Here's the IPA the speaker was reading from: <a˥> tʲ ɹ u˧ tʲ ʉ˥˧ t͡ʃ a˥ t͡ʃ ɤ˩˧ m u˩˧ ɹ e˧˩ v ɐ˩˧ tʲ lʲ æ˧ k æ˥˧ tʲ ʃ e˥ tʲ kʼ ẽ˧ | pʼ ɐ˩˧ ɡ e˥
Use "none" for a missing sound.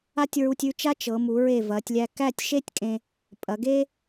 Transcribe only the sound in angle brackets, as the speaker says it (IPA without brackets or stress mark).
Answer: a˥